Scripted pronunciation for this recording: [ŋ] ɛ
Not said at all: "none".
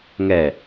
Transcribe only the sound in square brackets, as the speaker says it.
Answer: ŋ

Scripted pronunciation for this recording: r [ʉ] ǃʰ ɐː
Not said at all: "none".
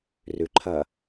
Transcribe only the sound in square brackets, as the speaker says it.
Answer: ʉ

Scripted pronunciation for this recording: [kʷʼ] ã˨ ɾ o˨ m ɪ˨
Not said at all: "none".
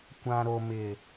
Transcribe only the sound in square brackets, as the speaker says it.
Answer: kʷ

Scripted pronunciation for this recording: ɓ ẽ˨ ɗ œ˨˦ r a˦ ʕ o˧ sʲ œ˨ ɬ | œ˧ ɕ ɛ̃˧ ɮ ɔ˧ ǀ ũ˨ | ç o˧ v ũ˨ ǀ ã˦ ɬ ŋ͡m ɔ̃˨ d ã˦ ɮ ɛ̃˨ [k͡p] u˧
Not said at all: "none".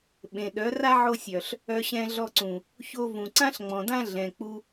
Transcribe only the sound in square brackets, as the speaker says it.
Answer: k͡p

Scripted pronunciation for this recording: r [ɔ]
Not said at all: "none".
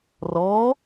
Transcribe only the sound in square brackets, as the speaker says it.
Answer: ɔ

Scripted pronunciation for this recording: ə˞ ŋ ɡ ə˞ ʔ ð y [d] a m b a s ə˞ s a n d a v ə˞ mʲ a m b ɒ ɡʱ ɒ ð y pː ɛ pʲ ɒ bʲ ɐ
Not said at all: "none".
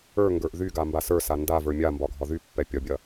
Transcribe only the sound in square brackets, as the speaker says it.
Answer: ɡ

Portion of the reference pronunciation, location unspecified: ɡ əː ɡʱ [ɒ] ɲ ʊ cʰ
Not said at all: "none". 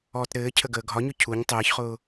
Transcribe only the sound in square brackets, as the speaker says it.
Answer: ɒ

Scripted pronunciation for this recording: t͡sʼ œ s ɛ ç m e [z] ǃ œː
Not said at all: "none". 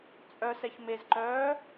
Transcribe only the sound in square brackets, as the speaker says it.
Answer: z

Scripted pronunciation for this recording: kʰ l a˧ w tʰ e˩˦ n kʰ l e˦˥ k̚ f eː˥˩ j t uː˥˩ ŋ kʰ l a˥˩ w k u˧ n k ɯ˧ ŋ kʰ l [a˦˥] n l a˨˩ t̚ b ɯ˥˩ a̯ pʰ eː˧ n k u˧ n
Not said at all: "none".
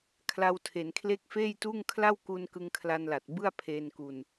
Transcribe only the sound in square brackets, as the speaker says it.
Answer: a˧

